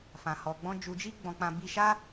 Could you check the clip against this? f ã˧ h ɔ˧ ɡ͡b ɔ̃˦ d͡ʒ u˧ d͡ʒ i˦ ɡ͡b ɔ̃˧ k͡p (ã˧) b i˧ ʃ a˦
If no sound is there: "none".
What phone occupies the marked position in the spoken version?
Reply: ã˧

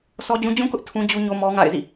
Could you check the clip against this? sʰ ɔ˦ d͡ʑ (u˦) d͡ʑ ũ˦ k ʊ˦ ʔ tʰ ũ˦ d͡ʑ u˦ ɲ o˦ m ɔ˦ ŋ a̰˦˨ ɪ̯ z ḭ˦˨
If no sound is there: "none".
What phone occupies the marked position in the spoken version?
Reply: ũ˦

